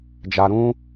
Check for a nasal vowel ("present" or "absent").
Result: present